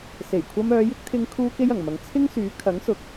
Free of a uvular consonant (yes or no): yes